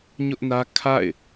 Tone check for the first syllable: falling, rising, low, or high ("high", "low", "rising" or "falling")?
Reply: high